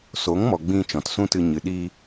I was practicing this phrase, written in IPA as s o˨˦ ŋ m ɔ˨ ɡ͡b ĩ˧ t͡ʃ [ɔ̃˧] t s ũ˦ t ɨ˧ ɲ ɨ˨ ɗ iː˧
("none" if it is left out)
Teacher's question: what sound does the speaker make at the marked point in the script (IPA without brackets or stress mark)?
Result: ɔ̃˨